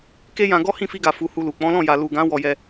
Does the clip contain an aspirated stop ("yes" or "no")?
no